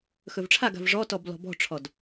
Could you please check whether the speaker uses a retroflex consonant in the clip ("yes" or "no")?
yes